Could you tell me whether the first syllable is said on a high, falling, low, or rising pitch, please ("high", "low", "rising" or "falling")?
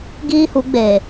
high